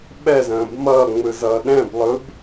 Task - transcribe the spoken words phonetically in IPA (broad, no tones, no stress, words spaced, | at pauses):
ɓɛzə̃ːb mʌːŋ͡mɯzʌː ɗɛ̃blˠɯb